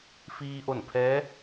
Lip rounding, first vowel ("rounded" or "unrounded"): unrounded